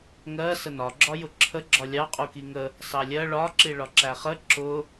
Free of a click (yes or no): no